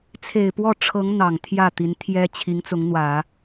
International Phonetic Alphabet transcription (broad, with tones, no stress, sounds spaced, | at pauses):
t͡sʰ e˨˩ ɪ̯ p w ɔ˥˩ ʈ͡ʂʰ ɤ˧˥ ŋ n̪ ɑ˨˩ ŋ t̪ʰ j ä˥˩ t̪ i˧˥ n t̪ʰ j ɛ˥ t͡ɕʰ i˧˥ ŋ t͡s ʊ˧˥ ŋ n̪ w ä˨˩˦